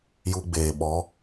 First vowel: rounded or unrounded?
rounded